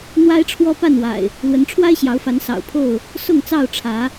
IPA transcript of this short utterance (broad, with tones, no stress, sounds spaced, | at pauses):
n̪ w a˦ ɪ̯ ʈ͡ʂʰ w ɔ˦ p a˥˨ n w a̰˨˩ ɪ̯ | l w ə˨˦ n ʈ͡ʂʰ w a˦ ɪ̯ ɕ j ɑ˨˦ ʊ̯ f a˨˦ n s ɑ̰˨˩ ʊ̯ pʰ o˥˨ ʊ̯ | s ʊ˥˨ ŋ t͡s ɑ˥˨ ʊ̯ ʈ͡ʂʰ ä˨˦